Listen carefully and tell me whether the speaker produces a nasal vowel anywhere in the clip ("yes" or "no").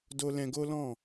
yes